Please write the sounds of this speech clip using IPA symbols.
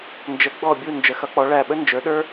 n d͡ʒ ə˨˥ ɡ͡b ɔ˦˨ bʲ u˦˨ n d͡ʒ ə˨˥ x ʌ˨˥ k͡p ɔ˨˥ ɭ æ˦˨ ɓ ə˥ n d͡ʒ ə˞˨˥ ɗ ə˞˥

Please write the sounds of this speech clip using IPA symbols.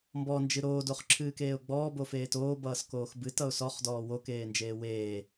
m b ɔ n d͡ʒ ɨ ɾ oː d o χ ǁʰ ɨː k eː ʊ̯ ɡ͡b ɔː b o f eː t oː b ʌː s k oː x b ɨ t ʌ ʊ̯ s ɔ χ d ɔː w o k eː n d͡ʒ eː w eː

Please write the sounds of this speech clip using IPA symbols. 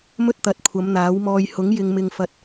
m ɵ˥ t̚ t̪ ɐ˨˥ t̚ kʷʰ ɐ˨˧ m n̪ aː˨˥ w m ɔː˧ j h ʊ˨˥ ŋ j ɪ˨ ŋ m ɪ˨ ŋ f ɐ˨ t̚

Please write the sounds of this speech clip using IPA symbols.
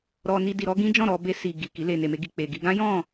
ɾ ɔ˧ n i˧ d i˧ ɾ ɔ˦ ɡ ĩ˦ d͡ʒ ɔ̃˦˨ ɾ ɔ˧ b e˧ s i˨ ɡ i˨ k i˨˦ l e˧ n e˨ m e˧ ɡ i˨ k͡p e˨ ɡ i˧ ɡ ã˦ j ɔ̃˦˨

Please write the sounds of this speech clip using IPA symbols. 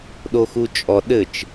ɗ o x u t͡ʃʼ ɔ ɗ ɘ t͡ʃ

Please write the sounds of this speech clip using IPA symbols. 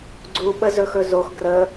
ɡ͡ǀ u ɓ ə z ɵ x ɵ z o x ɡ r ə

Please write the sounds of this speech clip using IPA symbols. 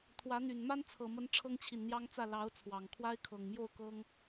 t̪ʰ w ä˨˦ n̪ y˨˩ n m a˦ n t͡sʰ ɤ˨˩ m ə˨˦ n ʈ͡ʂʰ ɤ˦ ŋ t͡ɕʰ i˨ n n̪ j ɑ˦ ŋ t͡s ä˥˨ l ɑ˨˦ ʊ̯ t͡sʰ w ɑ˨˩ ŋ kʰ w a˦ ɪ̯ kʰ ɤ˨˩ ŋ m j o˥˨ ʊ̯ k ɤ˦ ŋ

